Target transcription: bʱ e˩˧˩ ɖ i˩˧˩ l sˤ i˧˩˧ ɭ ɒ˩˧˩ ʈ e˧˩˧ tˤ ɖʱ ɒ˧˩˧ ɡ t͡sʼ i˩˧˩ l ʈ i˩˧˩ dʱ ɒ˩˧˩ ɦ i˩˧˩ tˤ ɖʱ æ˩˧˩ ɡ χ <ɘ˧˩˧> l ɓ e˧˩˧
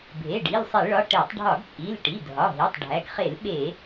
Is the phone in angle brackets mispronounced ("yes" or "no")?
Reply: yes